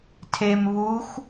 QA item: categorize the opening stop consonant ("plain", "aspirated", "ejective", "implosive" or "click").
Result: aspirated